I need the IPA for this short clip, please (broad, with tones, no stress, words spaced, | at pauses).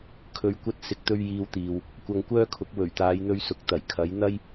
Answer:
kʰɵ˧ɥkʷɐ˥t̚ sɪ˧k̚t̪ɵ˥ɥ jiː˧wt̪iː˨w | kʷɐ˧ŋkʷœː˥kʰʊ˨˥k̚ wɵ˨˩ɥt̪aː˨˧jn̪ɵ˧ɥsʊ˨k̚ t̪ɐ˨˩jkʰɐ˨˥j n̪ɐ˥j